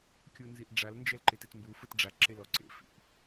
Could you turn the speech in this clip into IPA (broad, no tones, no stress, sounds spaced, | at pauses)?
kʲ u n z i ʔ ɖ͡ʐ a l n d͡ʒ ɛ l ǃ e t e t m b u f ɯ t ɖ͡ʐ a ǁ e l ɔ ǀ ḛ f ḭ ʔ